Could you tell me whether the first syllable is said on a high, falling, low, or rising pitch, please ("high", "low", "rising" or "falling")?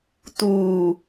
low